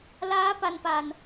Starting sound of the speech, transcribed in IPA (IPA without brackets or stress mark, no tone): l